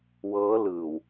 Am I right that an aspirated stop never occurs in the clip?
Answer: yes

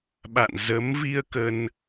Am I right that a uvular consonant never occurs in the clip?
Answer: yes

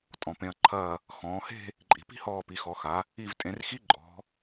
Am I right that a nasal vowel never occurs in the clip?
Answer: no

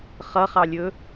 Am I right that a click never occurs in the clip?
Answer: yes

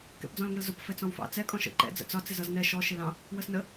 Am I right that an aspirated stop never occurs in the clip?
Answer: yes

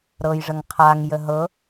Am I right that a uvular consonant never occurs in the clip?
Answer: no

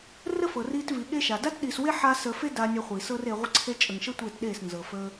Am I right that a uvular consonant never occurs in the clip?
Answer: no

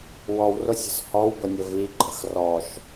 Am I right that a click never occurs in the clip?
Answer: no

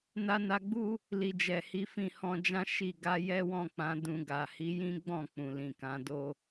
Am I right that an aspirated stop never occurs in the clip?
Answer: yes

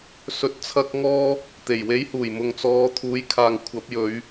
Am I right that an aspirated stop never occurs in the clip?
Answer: no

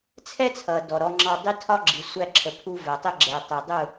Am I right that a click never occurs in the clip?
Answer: no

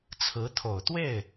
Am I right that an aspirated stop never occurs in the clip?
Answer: no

